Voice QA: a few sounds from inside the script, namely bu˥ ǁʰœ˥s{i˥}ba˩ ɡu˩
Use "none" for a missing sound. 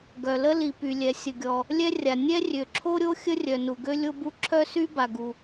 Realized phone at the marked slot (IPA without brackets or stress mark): y˥